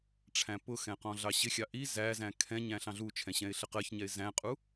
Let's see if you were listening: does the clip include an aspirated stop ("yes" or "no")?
yes